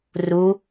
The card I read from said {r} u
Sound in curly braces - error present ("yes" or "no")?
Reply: no